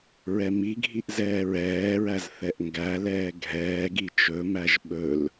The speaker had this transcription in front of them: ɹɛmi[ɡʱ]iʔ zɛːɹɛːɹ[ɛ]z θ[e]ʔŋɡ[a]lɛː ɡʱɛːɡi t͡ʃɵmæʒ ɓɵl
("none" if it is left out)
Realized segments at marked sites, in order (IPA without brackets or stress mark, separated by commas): ɡʱ, æ, ɛ, æ